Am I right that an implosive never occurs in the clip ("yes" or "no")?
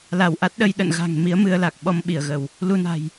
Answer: no